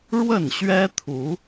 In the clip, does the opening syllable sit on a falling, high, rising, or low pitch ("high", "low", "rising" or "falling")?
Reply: falling